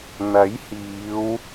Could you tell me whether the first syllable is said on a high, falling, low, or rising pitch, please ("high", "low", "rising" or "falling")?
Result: rising